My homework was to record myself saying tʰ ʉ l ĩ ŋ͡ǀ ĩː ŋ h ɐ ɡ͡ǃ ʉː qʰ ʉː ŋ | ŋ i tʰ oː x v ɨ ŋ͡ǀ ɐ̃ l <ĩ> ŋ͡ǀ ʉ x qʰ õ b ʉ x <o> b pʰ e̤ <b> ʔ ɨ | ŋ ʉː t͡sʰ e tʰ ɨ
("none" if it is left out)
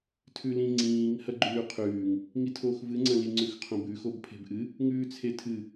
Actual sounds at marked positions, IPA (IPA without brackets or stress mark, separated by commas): i, o, b